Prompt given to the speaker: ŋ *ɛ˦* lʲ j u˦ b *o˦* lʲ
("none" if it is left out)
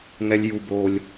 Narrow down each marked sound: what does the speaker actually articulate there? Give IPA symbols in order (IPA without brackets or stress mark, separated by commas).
ɛ˦, o˦